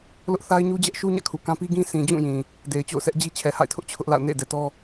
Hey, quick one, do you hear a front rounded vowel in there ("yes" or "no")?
no